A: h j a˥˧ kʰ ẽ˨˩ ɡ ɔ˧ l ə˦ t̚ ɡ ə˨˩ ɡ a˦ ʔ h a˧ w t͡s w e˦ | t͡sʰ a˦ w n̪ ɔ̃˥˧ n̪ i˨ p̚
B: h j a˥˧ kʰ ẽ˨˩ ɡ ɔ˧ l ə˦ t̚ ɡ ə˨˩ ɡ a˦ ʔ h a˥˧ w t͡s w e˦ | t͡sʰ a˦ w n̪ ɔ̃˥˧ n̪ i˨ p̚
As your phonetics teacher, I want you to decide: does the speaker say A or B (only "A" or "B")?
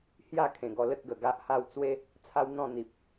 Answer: B